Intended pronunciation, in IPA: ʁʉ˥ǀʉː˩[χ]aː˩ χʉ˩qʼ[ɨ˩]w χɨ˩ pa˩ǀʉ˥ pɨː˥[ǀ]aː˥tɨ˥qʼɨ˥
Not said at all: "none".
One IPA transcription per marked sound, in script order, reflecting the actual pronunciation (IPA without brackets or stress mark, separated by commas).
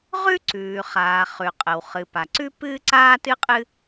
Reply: χ, ə˩, ǀ